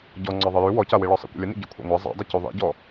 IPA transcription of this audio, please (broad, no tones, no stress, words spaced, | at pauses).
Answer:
ɟɔ ŋ͡ǀɒðˤəjʉ wɔcawiɭɒ sˤḭkʷə̰lʲənḭ ɟikʷʰa̰ŋʷa zˤa̰dˤə cuðˤḭɟɔ